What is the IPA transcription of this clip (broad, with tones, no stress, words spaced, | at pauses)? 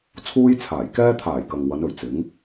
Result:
t͡sʰuː˧jt͡sʰaː˨˩jkɛː˧t̪ʰaː˨˩j kɐ˨ŋ wɐ˨˧nɵ˨ɥt͡sɪ˨˥ŋ